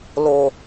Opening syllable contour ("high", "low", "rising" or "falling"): low